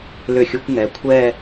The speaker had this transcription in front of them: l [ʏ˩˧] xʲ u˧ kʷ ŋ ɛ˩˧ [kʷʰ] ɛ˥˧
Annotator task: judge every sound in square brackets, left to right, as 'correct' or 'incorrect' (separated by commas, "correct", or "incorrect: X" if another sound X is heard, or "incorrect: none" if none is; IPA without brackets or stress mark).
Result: incorrect: ʏ˧˩, correct